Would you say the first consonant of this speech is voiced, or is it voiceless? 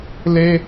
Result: voiced